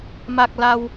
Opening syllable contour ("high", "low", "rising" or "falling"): low